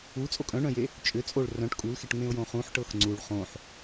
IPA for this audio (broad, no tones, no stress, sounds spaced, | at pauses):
u t͡sʼ o kʼ œ̃ ɳ œ̃ j e | t͡ʃʼ ʏ t͡sʼ o ɭ r œ̃ ʈ kʼ u l x e ʈ ŋ͡m ẽ ʊ̯ j õ χ ũ ħ ʈ ɤ x ŋ͡ǀ u ɭ χ õ ħ